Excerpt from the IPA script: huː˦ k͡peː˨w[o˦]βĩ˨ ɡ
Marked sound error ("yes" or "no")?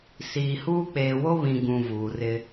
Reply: no